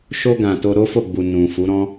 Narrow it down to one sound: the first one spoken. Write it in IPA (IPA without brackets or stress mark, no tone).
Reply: ʃ